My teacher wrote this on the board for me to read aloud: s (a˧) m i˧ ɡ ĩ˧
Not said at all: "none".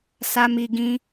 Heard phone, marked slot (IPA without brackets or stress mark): a˧